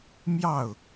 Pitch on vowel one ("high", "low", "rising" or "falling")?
falling